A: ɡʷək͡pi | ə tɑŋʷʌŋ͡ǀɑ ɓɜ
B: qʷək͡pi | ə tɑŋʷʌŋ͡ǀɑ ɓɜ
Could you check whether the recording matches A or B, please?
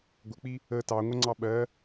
A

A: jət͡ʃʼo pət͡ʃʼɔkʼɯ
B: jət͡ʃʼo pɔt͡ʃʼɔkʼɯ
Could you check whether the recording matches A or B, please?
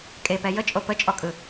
A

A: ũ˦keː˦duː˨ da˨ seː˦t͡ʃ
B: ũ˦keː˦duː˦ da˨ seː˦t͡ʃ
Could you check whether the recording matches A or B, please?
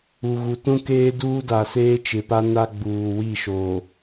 B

